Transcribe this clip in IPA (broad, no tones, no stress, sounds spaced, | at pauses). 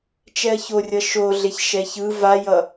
t͡ʃ ɛ ɐ̯ ç o rʲ ʌ ʃ o ɮ e ç ʃ ɛ ç ɯ v a j ʌ